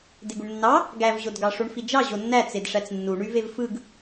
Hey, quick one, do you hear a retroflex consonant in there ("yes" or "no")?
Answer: yes